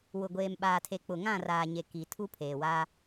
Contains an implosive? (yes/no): yes